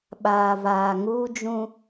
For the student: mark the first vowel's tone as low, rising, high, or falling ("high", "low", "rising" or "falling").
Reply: low